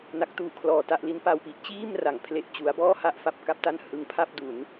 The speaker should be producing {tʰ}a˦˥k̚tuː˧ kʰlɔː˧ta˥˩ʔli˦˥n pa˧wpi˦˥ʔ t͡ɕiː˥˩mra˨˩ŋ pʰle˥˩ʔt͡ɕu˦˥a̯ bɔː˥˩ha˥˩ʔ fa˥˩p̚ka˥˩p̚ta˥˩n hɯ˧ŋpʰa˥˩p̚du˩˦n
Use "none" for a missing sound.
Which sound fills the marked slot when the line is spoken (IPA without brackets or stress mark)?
n